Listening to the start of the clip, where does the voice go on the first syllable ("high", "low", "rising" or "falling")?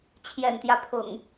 low